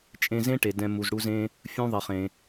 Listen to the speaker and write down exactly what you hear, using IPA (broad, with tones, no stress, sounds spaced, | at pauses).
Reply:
t͡ʃʼ ẽ˧ z ẽ˥ ʈ e˩ d ɛ̃˩ m u˩ z ɽ u˧ z ẽ˧ | fʲ ũ˧ ðˤ e˩ χ ẽ˩